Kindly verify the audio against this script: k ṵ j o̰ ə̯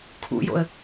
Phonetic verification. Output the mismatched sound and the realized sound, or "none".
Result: k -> kʰ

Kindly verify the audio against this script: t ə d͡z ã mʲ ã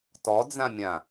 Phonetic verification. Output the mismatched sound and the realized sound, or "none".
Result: ə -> ɔ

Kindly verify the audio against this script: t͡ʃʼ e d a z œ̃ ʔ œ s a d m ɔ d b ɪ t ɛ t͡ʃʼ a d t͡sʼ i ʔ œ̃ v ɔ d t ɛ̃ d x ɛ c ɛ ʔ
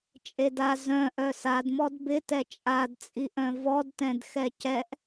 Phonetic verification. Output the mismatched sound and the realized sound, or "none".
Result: none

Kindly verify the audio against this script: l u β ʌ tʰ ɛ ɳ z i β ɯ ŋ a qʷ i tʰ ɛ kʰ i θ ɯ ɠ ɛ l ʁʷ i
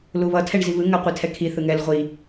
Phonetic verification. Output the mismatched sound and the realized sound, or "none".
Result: ɠ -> ŋ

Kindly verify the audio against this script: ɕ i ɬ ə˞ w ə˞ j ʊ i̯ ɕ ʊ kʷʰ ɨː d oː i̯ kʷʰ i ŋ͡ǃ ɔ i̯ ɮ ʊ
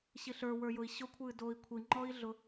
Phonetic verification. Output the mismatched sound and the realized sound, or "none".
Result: none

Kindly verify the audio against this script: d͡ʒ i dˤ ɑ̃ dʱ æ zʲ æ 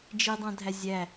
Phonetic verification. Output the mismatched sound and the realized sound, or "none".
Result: none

